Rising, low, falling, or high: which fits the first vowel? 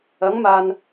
rising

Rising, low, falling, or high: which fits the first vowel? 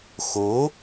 rising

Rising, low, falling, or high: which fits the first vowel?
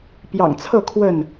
low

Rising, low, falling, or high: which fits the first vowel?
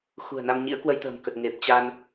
low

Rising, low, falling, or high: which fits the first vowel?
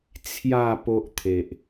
falling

